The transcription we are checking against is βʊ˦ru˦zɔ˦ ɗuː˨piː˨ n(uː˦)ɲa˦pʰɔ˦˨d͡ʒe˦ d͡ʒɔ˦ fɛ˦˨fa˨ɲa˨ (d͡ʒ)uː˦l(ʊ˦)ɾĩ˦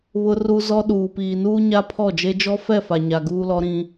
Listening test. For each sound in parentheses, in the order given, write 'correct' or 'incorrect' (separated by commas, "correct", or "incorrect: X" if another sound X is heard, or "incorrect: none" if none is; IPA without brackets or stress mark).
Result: correct, incorrect: ɡ, incorrect: ɔ˦